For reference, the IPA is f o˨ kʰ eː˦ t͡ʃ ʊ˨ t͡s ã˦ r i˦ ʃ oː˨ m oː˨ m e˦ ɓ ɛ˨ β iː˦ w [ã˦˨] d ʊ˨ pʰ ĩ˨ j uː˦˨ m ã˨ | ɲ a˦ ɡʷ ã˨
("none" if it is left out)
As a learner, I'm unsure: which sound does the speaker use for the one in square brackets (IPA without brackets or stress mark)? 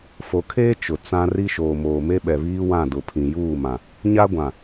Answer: ã˦˨